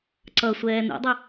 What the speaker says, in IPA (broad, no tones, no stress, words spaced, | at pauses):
ǀʌsʷɛː nṵdˤʊ